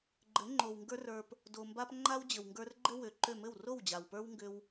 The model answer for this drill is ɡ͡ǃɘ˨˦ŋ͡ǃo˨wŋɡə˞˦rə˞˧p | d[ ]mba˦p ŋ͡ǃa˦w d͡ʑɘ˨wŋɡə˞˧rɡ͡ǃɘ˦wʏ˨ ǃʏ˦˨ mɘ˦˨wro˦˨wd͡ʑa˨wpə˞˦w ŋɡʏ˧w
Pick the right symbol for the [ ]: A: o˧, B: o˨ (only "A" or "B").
B